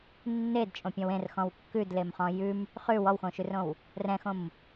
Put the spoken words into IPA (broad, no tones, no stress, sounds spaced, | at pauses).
nː e d t͡ʃʼ õ pʲ ɔ̃ w ẽ r x ɔ̃ w kː ʉ d l e m χ ɔ̃ j ʉ m | χ ʉ w ɔ w x õ ʃ ʉ r õ w | r ɛ̃ x õ m